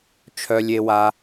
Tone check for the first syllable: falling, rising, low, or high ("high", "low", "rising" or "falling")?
low